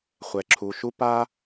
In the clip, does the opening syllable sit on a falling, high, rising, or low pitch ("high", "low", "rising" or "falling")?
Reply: low